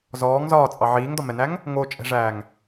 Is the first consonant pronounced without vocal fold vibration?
no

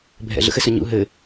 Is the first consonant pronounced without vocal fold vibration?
no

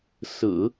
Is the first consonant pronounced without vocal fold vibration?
yes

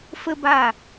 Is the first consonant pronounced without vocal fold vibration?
yes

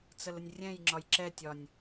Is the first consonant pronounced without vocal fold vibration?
yes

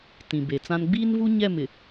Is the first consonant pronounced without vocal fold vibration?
yes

